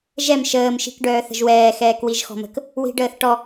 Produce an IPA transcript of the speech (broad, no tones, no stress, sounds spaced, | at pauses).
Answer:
ʒ ɛ m ʃ əː m ʃ i̤ k ɖ œː θ ə̤ ʒ w ɛː x ɛː k w i ʒ x ɔ̤ m ə̤ k | w i̤ ɖ əː θ ʈ ɔ